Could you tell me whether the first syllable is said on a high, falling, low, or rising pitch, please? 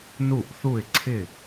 falling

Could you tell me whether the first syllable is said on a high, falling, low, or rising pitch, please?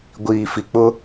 low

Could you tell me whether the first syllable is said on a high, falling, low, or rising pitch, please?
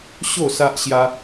falling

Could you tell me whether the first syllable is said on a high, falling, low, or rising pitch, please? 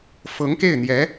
rising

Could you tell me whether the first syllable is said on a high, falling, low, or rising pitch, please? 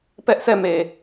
high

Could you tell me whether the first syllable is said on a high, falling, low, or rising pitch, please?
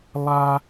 high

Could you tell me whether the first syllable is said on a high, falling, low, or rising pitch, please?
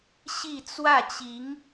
falling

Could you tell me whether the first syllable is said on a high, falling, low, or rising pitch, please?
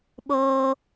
high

